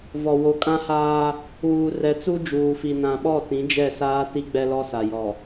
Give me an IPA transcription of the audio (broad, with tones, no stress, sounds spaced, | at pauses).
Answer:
v ɔ˨ w o˨ kʼ ã˦ h aː˦ | uː˨ r ɛ˨ t͡s u˦ d͡ʒ uː˨ f i˨ n ã˨ ɓ ɔ˦˨ t ĩ˨˦ d͡ʒ ɛ˦˨ s aː˦ t i˦ ɡ͡b ɛ˦ l ɔ˦ s a˨ j ɔ˨